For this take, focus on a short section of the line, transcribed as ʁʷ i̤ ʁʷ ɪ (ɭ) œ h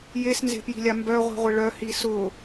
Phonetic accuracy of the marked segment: correct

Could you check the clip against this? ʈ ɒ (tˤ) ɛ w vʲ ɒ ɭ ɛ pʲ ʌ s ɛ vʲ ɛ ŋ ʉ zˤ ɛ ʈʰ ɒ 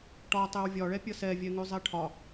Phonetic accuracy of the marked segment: correct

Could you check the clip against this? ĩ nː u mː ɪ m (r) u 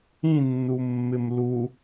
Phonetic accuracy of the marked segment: incorrect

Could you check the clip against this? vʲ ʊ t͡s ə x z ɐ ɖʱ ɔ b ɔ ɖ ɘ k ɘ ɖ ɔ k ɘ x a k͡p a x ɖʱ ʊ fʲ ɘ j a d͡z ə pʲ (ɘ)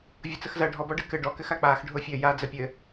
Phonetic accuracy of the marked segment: correct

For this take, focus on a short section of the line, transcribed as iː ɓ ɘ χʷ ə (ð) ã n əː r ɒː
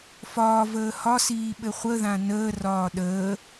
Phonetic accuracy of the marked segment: correct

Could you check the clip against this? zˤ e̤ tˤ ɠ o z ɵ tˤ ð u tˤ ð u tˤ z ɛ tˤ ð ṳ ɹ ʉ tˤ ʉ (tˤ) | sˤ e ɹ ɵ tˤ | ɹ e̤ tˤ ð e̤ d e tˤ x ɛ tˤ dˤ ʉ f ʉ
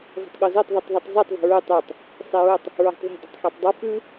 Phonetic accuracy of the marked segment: correct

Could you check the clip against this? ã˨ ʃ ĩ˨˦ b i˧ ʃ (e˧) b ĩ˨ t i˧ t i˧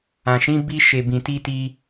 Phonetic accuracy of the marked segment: incorrect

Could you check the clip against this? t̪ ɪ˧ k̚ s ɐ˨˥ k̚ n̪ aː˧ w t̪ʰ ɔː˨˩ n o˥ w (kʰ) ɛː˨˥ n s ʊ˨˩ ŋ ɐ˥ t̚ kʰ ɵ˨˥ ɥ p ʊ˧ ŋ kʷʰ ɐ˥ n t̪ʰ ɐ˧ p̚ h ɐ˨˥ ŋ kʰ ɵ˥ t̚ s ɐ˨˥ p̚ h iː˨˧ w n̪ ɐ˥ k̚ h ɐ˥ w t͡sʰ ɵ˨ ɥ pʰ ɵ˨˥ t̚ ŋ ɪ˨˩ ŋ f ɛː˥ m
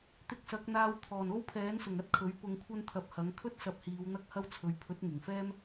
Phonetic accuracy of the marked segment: incorrect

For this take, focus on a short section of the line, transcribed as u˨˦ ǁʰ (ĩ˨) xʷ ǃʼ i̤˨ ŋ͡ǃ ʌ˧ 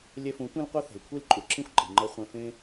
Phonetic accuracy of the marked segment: incorrect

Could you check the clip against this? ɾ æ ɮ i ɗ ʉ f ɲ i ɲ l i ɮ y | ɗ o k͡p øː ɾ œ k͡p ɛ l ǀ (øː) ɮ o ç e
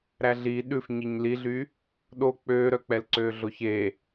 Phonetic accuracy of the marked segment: correct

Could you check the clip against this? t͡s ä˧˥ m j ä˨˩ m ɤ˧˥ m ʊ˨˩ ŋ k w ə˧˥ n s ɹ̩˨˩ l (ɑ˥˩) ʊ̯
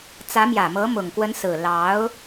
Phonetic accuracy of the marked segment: incorrect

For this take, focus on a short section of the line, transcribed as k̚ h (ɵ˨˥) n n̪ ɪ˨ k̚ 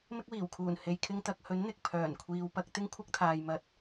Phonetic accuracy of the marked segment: correct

